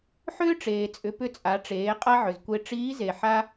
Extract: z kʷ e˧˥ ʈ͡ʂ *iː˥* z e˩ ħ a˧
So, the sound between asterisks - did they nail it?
no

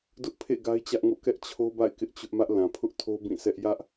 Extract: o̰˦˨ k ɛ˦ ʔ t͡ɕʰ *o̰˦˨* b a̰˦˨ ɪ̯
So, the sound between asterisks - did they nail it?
no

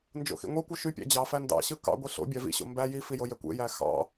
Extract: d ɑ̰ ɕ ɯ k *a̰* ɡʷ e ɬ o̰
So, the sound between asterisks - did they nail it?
no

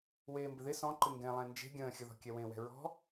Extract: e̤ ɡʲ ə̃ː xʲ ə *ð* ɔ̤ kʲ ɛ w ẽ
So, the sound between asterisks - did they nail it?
yes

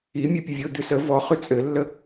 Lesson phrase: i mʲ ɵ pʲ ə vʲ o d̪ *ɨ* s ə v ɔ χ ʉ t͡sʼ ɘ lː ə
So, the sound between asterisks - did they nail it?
yes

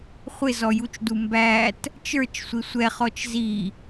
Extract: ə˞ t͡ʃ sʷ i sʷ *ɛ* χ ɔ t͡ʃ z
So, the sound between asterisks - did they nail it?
yes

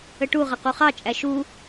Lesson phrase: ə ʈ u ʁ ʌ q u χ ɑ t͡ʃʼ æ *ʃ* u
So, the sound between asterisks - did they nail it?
yes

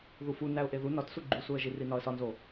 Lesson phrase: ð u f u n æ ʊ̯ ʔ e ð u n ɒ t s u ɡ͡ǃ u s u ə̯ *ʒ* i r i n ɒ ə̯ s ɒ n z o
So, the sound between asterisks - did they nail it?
yes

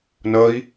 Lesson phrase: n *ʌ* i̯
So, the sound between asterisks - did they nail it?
yes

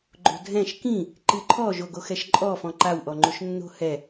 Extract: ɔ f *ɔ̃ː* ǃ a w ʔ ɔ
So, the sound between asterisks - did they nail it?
no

